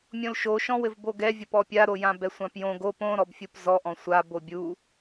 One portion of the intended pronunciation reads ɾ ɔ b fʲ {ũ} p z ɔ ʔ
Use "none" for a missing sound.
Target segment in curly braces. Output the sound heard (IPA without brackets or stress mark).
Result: u